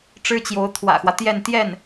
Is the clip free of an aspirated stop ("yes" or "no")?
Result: no